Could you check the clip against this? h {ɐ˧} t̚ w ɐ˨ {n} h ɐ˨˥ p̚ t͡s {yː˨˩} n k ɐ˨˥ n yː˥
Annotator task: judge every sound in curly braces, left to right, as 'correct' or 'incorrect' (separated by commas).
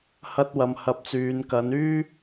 correct, incorrect, incorrect